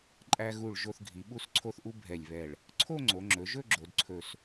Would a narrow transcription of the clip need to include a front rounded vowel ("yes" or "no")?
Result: no